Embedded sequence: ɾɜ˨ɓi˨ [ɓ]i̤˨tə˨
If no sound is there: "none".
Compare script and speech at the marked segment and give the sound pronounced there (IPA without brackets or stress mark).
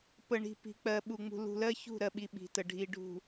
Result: ɓ